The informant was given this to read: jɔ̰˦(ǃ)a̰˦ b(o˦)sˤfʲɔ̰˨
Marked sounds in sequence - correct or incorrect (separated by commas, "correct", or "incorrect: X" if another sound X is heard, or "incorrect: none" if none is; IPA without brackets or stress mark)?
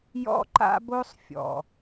correct, correct